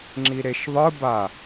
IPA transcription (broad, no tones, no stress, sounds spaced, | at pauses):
ŋ͡ǁ i ɾ e ʃ ðˤ ɯ b a